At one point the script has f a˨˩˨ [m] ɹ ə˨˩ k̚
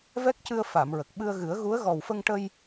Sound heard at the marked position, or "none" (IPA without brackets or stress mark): m